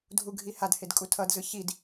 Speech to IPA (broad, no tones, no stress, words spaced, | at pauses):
dʱuɡʱihadhed kʼutʰʌdzɯ çid